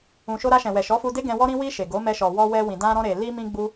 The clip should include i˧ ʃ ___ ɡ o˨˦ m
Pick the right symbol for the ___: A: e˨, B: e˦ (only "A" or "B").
A